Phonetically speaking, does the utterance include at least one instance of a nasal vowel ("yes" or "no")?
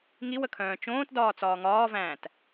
yes